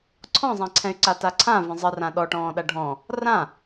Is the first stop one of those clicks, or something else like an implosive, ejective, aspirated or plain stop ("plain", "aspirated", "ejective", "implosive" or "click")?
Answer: click